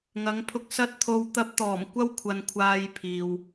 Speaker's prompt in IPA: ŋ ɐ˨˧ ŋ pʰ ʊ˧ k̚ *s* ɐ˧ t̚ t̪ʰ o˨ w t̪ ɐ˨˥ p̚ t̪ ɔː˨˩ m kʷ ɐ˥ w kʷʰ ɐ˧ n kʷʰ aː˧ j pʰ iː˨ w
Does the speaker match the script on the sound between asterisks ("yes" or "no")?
yes